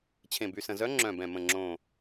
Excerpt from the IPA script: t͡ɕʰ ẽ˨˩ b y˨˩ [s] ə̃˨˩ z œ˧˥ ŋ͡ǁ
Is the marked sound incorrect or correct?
correct